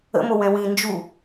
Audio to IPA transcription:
ə̰ m o w ɛ̃ w ĩ n d͡ʒ u

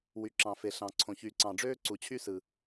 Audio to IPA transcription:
w y˨ ǁ ɑ̃˨ f e˨ ɬ ɑ̃˨ ǀʰ õ˨ ç y˨ ǀ ɑ̃˨ ɖ͡ʐ øː˦ ǀ u˨ t͡ɕʰ y˦ s ɯ˨

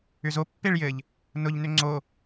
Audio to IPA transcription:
ʏ z o pː e ɭ j ɘ ʎ | n ʊ ʎ n ʏ ŋ͡ǀ o

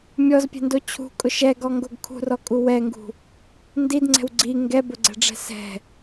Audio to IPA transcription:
mʲ ɔ z pʲ ɛ̤ n d o t͡ɕʰ ṳ kʼ ʊ ʃ ɛ ɡ ɔ ŋ ɡ o ɡ kʰ ṳ r ɔ kʼ u w ɛ ŋ ɡ ṳ | n d i d ŋ͡ǀ ɛ̤ w ɡ͡ǀ i ŋ ɡ ɛ b ʊ ɡ͡ǀ ɛ̤ ɖ͡ʐ ɛ̤ s ɛ̤

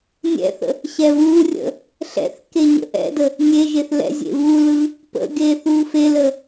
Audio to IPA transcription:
nʲ ɛ̰ θ ə̰ | ɕ ɛ β uː rʲ ə̰ | ɬ ɛ̰ θ k e ɲ ə̰ ʔ ɛ̰ d ə | nʲ e ʒ e θ l ɛ̰ zʲ ḛ β u l ɯ | p ə̰ ɡ eː θ uː f e l ə

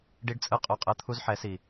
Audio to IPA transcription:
ɖ i˦ ɖ t͡sʼ ɯ˦ qʼ o˦ qʼ ɯ˦ t̪ʰ u˦ z ħ ɛ˨˦ s i˨

